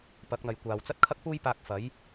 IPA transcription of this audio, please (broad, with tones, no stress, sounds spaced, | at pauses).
p ɐ˨˥ k̚ n̪ ɐ˨ j kʷ aː˨ w t͡s ɐ˥ t̚ kʰ ɐ˥ k̚ p uː˥ j p aː˧ k̚ f ɐ˨˥ j